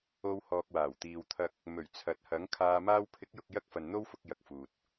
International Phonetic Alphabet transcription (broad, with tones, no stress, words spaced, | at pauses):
o˧w hɔː˨k̚waː˨˩wt̪iː˨wt̪ʰɐ˧k̚ | mɵ˨˩ɥ t͡sʰɐ˨˥t̚hɐ˨˥ŋkʰaː˧ maː˧wpʰɪ˨˥k̚jʊ˨k̚ jɐ˥k̚fɐ˨nn̪o˥wfʊ˧k̚ jɐ˨k̚fuː˨t̚